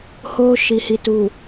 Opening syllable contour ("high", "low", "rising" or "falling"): high